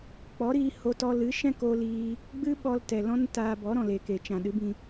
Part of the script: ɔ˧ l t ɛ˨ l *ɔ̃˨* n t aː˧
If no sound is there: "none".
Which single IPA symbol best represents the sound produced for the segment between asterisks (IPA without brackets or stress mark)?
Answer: ɔ̃˦